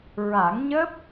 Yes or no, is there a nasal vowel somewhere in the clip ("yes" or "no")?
no